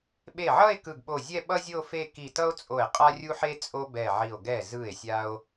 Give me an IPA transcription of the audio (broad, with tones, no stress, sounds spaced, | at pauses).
ɓ e˧˩ ʕ ʌ˥˧ e̯ k ɯ˧˩ ɡ ɓ o˧˩ zʲ ɛ˥˧ ɓ ʌ˥ zʲ o˥˧ f e˥˧ k i˧˩ t ʌ˥ o̯ t͡sʼ o˧˩ e̯ qʼ a˥ rʲ u˥ ħ e˥ t͡sʼ o˥ b ɛ˧˩ ʕ i˧˩ o̯ ɡ ɛ˧˩ z ɯ˧˩ e̯ sʲ a˥ o̯